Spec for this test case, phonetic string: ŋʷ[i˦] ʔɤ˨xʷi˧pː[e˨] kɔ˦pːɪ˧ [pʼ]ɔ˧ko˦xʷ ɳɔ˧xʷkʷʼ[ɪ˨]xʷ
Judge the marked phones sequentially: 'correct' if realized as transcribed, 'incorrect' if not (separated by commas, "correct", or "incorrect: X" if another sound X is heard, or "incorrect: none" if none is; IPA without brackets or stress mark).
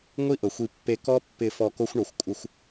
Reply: correct, incorrect: e˧, incorrect: f, incorrect: ɪ˦